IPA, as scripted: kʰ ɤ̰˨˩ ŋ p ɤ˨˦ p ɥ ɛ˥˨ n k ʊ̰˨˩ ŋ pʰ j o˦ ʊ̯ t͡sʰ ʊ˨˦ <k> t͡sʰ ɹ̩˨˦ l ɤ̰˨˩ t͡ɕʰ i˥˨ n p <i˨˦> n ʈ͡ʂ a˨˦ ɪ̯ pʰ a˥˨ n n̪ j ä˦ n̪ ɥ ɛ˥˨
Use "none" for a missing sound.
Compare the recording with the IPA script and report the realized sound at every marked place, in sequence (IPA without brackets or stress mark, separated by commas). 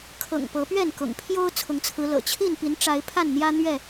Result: ŋ, i˨˦